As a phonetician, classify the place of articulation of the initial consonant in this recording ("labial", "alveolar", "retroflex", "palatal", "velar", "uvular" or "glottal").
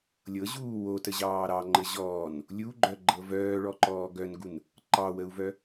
alveolar